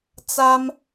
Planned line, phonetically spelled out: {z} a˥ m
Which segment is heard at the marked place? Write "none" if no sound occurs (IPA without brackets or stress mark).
t͡s